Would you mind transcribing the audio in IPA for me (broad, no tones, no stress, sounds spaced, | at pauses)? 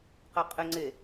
q ɛ qʼ ɪ ŋ͡ǀ e